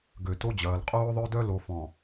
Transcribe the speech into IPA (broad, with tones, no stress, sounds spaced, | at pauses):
ɡ ø˨ t o˦ d͡ʑ ɐː˨ l qʼ oː˦ ðˤ ø˦ d œ˦ l o˨ f ɔ̃˨